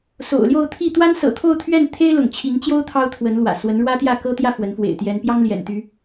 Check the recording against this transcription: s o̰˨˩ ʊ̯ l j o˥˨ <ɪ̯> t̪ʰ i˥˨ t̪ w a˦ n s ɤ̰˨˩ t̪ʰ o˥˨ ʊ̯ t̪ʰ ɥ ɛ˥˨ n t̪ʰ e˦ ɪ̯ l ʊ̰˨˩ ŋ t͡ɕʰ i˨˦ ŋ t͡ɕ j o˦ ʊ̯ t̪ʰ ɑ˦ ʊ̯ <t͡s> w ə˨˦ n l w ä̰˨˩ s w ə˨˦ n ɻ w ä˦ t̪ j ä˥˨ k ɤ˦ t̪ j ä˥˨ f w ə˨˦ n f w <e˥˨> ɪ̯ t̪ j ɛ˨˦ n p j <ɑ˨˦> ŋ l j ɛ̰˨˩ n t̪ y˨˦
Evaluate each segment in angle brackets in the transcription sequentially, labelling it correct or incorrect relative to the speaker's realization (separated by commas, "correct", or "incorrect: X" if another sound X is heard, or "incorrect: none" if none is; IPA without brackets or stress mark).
incorrect: ʊ̯, incorrect: t̪ʰ, incorrect: ḛ˨˩, incorrect: ɑ˦